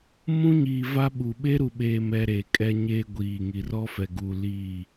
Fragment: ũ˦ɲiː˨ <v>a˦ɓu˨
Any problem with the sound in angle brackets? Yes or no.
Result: no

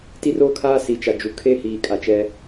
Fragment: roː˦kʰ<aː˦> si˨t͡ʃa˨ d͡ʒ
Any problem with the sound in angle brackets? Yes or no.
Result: no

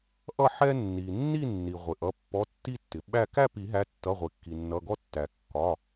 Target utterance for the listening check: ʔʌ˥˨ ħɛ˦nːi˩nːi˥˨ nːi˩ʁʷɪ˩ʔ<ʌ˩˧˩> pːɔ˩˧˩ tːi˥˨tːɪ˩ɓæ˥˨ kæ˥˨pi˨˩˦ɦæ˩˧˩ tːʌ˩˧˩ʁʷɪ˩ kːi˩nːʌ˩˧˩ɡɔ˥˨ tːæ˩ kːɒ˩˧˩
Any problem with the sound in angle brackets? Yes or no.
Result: no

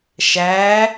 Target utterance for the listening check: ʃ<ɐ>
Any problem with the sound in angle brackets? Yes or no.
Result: yes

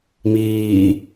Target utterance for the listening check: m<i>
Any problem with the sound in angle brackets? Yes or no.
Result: yes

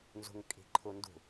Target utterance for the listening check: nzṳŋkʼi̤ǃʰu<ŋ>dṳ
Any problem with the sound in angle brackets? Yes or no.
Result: yes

